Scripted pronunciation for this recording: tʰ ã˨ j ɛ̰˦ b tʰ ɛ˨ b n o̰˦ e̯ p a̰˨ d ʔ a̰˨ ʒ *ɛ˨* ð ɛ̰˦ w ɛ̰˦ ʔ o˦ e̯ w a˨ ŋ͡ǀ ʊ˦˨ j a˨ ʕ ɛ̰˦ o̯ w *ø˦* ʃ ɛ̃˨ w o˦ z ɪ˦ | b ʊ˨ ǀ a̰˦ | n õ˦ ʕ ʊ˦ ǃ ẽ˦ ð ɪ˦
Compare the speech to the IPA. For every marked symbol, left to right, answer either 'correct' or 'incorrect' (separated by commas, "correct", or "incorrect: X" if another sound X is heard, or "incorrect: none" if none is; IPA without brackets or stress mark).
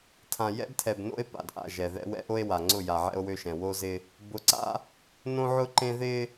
correct, correct